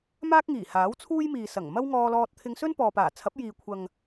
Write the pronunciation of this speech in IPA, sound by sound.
m aː˥ k̚ ŋ iː˨˩ h aː˨˥ w t͡sʰ uː˥ j m iː˨ s ɐ˨˩ ŋ m ɐ˥ w ŋ ɔː˧ l ɔː˧ t̚ t̪ʰ ɪ˧ ŋ s ɵ˥ n p ɔː˨ p aː˨˩ t͡sʰ ɐ˨˥ p̚ j iː˨ kʷʰ ɐ˨ ŋ

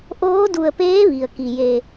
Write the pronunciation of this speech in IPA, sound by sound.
ʔ oː˧˥ d u˧˩ ə̯ p eː˧˥ ʋ i˩ ə̯ k i˩ j e˧˩

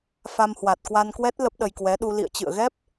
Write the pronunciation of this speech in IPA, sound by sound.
f a˧ m h w a˨˩ t̚ k w a˧ n k w ɛ˦˥ t̚ l ə˦˥ p̚ ɗ ə˧ j k w ɛ˨˦ ɗ u˧ l ḭ˧˨ ə̯ t͡ɕ ɨ̰˧˨ ə̯ ɣ ɛ˦˥ p̚

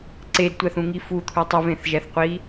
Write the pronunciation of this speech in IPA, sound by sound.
ǀ e d tʷ æ θ ũ ŋ i f u t̪ʰ u tˤ u v ẽ θ ʒ æ θ qʷ i

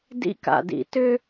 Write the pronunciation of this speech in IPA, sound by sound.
d ḭ˦ k a̰˨ d ḭ˨ t ʏ˦

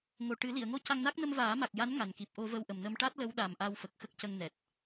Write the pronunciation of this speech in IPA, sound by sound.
ŋ o˨˩ ʈ ɨ˨˩˦ l i˨˩˨ ə̯ ŋ o˧ c a˧ ŋ n a˦˥ k̚ n ə˧ m v aː˨˩˦ m a˨˩ k̚ j a˧˥ n ŋ a˨˩ n k i˨˩ p̚ ʔ o˧ v ə˧ w ʔ ə˨˩ m n ə˧ m ʈ a˦˥ t̚ l ə˧˥ w ɗ a˨˩ m ʔ a˧ w f ə˨˩ k̚ x ə˦˥ k̚ c ə˧ ŋ n ɛ˨˩ t̚

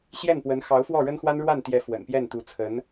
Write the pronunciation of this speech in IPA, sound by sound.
ɕ j ɛ˥˩ n p w ə˧˥ n x ɑ˧˥ ʊ̯ f w ɔ˥˩ ɻ ə˥ n x w a˥ n ɻ w a˥˩ n t̪ j ɛ˧˥ f w ə̰˨˩ n p j ɛ˥˩ n t̪ u˧˥ t͡sʰ ə˧˥ n

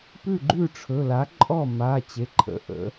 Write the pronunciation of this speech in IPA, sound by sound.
p ʉ˥˩ ɡ͡ǃ ʉ˥˩ ʈ͡ʂʰ ɵ˩˧˩ l a˩˥ ǃʼ ɔ˥˩ m a˩˧˩ t͡ɕ e˩˧˩ ǃʰ ə̰˩˧˩ ʔ ə̰˩˥

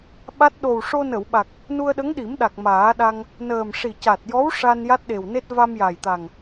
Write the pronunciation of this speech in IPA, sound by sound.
ɓ a˦˥ t̚ ɗ o˨˩ w ʂ o˧ n ə˨˩˨ w ɓ a˨˩ k̚ | n u˧ ə̯ ɗ ə˧˥ ŋ ɗ i˨˩˦ m ɗ a˨˩ k̚ m aː˨˩˦ ɗ a˧ ŋ | n əː˨˩ m ʂ i˨˩ c a˨˩ t̚ j ɔ˧˥ w ʂ a˧ n j a˦˥ t̚ ɗ e˨˩ w n e˦˥ t̚ v a˧ m j a˨˩ j t̪ a˨˩ ŋ

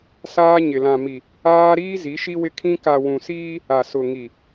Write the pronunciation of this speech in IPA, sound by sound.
s aː˦ ɲ ɪ˨ l ã˨ m i˨ | aː˦ ɾ iː˦ z i˨˦ ʃ i˦ w ɪ˦ kʰ ĩ˦ k a˨ w ũ˨ s iː˦ | a˨ s ʊ˨ ŋ i˨

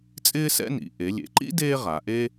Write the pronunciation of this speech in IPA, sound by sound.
t͡sʼ ɪː˥ s ɛ̰˥ n ḭ˩˧ ʔ e˩˧ lʲ ḛ˩˧ ǃ ḭ˥ d eː˥ ʁ a˩˧ ʔ e˥

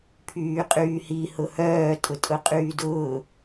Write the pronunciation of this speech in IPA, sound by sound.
pʰ yː qʼ yː h i h ʊ h œː tʼ ʊ tʼ ʊ qʼ yː d ʊː

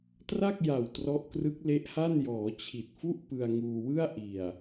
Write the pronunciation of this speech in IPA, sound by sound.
t r a˥˩ k̚ j a˨˩ w t r ɔ˦˥ ʔ k r ɯ˦˥ k̚ l e˦˥ ʔ h a˥˩ n j ɔː˩˦ t͡ɕʰ i˨˩ t̚ f u˥˩ ʔ p ɯ˧ a̯ ŋ uː˧ w ɯ˥˩ a̯ ʔ i˨˩ a̯

